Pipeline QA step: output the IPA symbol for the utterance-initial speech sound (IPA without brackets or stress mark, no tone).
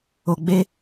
o